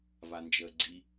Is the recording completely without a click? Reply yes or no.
no